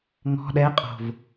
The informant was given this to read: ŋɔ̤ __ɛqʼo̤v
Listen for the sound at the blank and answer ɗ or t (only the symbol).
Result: ɗ